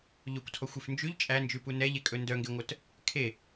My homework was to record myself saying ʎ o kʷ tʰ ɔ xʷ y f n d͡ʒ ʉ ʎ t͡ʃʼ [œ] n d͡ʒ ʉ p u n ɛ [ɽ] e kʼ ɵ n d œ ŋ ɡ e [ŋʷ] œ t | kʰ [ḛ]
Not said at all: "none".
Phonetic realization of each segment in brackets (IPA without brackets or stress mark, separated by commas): æ, ʎ, ŋʷ, e